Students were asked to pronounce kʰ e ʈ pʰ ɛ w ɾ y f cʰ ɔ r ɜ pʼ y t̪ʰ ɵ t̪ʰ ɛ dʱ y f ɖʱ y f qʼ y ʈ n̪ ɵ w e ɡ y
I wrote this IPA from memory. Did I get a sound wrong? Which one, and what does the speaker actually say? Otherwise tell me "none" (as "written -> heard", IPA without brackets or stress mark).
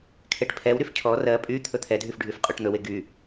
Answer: none